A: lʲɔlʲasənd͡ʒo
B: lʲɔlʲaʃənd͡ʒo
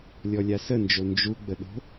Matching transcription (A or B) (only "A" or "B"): A